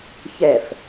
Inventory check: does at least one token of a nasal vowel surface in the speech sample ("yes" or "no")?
no